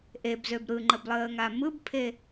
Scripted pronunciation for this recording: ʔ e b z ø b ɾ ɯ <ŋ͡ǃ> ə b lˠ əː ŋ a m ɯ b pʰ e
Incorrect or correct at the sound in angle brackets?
correct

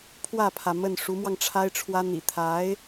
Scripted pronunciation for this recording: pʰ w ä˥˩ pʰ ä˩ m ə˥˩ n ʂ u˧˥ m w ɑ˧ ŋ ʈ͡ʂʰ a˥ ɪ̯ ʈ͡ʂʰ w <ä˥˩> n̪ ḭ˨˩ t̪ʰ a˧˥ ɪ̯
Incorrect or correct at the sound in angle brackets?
incorrect: ä˥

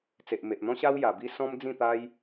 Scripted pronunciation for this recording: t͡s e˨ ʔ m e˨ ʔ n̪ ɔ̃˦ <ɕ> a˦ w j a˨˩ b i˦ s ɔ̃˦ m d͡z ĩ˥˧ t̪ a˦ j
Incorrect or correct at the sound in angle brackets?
correct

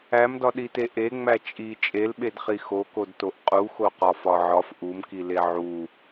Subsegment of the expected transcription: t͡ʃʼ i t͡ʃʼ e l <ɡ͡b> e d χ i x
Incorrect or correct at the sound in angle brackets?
incorrect: ɓ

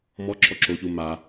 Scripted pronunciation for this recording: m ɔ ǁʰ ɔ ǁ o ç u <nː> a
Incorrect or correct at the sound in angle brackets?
incorrect: m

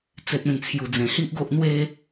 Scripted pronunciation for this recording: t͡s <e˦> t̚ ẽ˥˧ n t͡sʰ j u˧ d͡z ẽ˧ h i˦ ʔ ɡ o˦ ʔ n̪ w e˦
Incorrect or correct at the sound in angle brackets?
correct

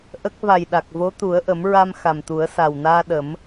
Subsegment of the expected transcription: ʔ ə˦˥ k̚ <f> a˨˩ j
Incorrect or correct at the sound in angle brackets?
incorrect: v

